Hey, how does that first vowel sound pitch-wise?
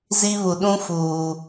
high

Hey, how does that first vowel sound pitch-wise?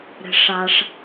low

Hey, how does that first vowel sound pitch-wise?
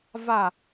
falling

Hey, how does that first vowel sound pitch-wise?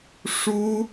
high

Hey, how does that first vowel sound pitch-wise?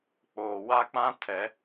low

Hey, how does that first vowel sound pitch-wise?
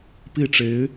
falling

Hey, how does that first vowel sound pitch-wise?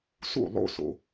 falling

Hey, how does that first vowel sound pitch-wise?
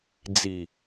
low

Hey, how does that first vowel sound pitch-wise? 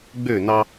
falling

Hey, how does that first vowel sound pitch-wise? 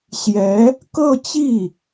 rising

